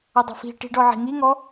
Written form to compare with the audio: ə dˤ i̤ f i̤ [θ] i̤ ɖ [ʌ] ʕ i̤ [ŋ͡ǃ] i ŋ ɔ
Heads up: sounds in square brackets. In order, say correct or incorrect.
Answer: incorrect: ʈ, incorrect: ɔ, incorrect: ŋ

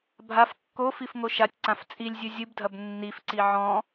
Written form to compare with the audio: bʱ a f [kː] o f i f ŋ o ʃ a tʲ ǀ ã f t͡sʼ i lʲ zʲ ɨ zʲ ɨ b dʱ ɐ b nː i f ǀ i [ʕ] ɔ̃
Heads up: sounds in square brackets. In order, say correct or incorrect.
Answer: correct, correct

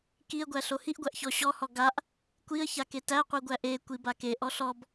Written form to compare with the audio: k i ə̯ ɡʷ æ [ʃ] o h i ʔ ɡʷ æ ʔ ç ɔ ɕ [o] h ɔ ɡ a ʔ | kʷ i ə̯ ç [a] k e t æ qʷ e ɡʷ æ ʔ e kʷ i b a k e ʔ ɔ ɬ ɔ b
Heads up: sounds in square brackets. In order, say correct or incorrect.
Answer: incorrect: ɬ, incorrect: ɔ, correct

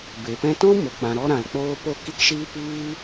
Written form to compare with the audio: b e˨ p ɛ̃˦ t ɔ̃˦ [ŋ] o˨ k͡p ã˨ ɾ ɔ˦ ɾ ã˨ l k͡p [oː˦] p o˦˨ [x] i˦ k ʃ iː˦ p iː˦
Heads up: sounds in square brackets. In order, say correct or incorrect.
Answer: incorrect: m, correct, incorrect: k

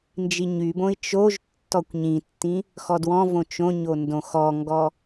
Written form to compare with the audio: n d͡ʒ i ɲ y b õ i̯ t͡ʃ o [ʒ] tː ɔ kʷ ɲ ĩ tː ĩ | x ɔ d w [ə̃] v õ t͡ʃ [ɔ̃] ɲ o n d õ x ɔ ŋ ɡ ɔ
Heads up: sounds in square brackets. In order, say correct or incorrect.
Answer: correct, incorrect: ɔ̃, incorrect: õ

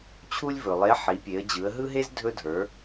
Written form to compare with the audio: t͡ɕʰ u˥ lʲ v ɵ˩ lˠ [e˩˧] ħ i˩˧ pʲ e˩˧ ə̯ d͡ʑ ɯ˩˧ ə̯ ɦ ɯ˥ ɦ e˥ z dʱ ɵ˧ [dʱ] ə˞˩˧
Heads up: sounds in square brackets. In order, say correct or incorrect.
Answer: incorrect: e˧˥, correct

